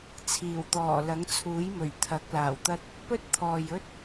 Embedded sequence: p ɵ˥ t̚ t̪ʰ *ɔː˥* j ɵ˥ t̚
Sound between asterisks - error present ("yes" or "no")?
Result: yes